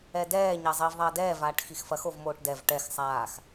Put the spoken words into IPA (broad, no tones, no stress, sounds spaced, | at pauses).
ɛ d ɛː ɲ ɐ zˤ iː v ðˤ ɐː d ɛː v aː ʈ x i x f ɐ x o v m oː ʈ d ɛ v ʈ ɛ x sˤ aː x